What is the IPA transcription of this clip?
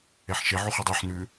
e ħ ʃ e ʕ u χ y dˤ y ħ n ʉ

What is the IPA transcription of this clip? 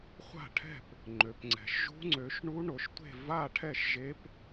χʷ a̤˥˨ ʈʰ ɛ̤˥˨ p | ŋ͡ǃ ø˩˧ p ŋ͡ǀ ɛ̤˩˧ ʃ ʒ ṳ˧˥ ŋ͡ǀ ø˩˧ ʃ ɳ u˧˥ ɳ o˩˧ ʃ tʷ e̤˥˨ v a˥˨ ʈʰ ɛ˥˨ ʃ ʒ e˧˥ p

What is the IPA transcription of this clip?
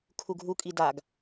kʰ u ɡʱ u kʼ i d a ɡ

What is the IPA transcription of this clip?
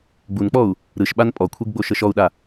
ɡ͡b u n k͡p ɔ u̯ | ɾ ɯ ʃ ɓ a n pʼ ɔ kʷʰ e ɡ ɡ͡b o ʃ ɤ ʃ ɔ u̯ ɗ a

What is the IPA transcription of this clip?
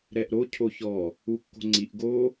ɾ ɛ ʔ ɾ o cʰ o ç ɔ | u kː o̤ ŋ͡ǀ i ʔ ɡ o

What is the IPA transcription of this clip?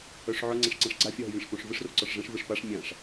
œ ʂ ʕ œ ŋ͡ǀ ɛ̃ ʂ ǀ ã ʂ ɡ͡ǀ a fʲ ɒ ɦ e vʲ ɛ̃ ʂ p õ ʂ v ɯ ʂ r o ǀ ɒ ʂ ʐ ɛ̃ ʂ v ɯ ʂ p a ʂ mʲ ã ʂ

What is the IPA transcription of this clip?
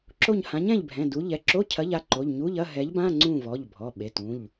ǁ o˦˨ ɲ h ã˨˥ ɲ ɛ̃˦˨ ʎ bʱ ɛ̃˩˧˩ d u˨˥ ʎ ɛ˩˧˩ ǁ o˧˥˧ cʰ ɐ˨˥ ʎ a˩˧˩ ǃ o˩˧˩ ʎ ɲ u˧˥˧ ʎ ɐ˧˥˧ ɦ ɛ˨˥ ʎ b ã˧˥˧ ŋ͡ǀ ũ˦˨ v ɔ˩˧˩ ʎ bʱ ɔ˩˧˩ ɓ e˩˧˩ t ũ˩˧˩ ʎ

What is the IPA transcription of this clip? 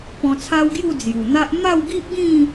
p ɔ̃˧ t͡sʰ a˦ w ɡ j u˥˧ d͡z j u˨˩ n̪ a˦ ʔ m a˥˧ w ɡ i˦ ʔ ɡ ĩ˥˧

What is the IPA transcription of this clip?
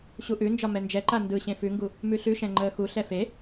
ɕ u ʔ ʉ n d͡ʒ ɒ m ɛ n d͡ʒ ɛ ǃ a n d ɯ ɕ ẽ f ʉ ŋ ɡ u | m ʉ ɬ ʉ ʃ ɛ̃ ŋ͡ǃ əː x u ɬ ɛ f e

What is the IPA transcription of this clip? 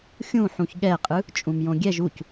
xʲ ũ ħ ũ ç ɠ ɛ qʼ ɯ | t͡ʃʼ ũ m j õ ɡʲ ɛ ʒ u c

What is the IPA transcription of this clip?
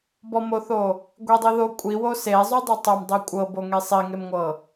b ɔ m o θ o | ɡʷ i dˤ i ð o kʷʼ i w o s e zˤ u dˤ e tˤ o m dˤ i kʷʼ ɤ b o ŋ e sˤ i ŋ e m ŋʷ ɤ

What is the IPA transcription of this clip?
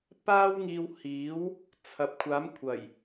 p aː˥ w ŋ iː˧ w h iː˨˥ w | t͡sʰ ɐ˨ p̚ kʷʰ aː˨˥ m kʷʰ ɐ˨˩ j

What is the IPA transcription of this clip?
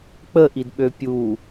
k͡p ə ʔ i d ɓ ø pʲ u

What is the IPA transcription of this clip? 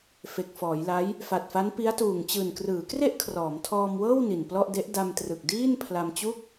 f e˨˩ k̚ f ɔː˩˦ j l a˦˥ j | f a˨˩ t̚ f a˦˥ n p i˦˥ a̯ t uː˨˩ ŋ t͡ɕ ɯː˨˩ n k r ɯː˩˦ k r e˥˩ ʔ kʰ r ɔː˩˦ m tʰ ɔː˧ m w ɤː˥˩ w n i˨˩ n p l ɔ˥˩ ʔ d e˦˥ ʔ d a˧ m t r ɯ˨˩ k̚ d iː˥˩ n pʰ l a˧ m t͡ɕ u˥˩ k̚

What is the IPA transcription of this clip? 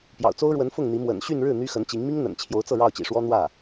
p j ɑ̰˨˩ ʊ̯ t͡s o˥ ʊ̯ ɻ w ə˧˥ n f ʊ˥˩ ŋ n̪ i˧˥ m w ə̰˨˩ n ɕ y˥˧ n ɻ ɻ̩˥˩ n̪ y˥ x ə˧˥ n t͡ɕ i˧˥ ŋ m i˥ ŋ n̪ ə̰˨˩ n t͡ɕʰ j o˧˥ ʊ̯ t͡s ɤ˥˧ ɻ ɑ˥˩ ʊ̯ t͡ɕ ḭ˨˩ ʂ w ɔ˥ n̪ w ä˥˩

